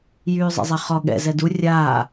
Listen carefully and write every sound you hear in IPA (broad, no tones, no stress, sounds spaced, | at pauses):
j yː zˤ ɛ̰ zˤ e χ ɔ ɠ ɛ̰ z ɛ d u rʲ aː